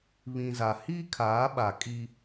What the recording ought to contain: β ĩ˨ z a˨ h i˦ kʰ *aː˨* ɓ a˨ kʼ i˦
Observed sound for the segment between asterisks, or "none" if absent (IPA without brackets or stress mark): aː˨˦